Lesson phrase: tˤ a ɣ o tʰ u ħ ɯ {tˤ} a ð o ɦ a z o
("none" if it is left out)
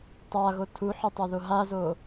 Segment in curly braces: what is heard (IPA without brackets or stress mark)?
tˤ